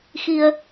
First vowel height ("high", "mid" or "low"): high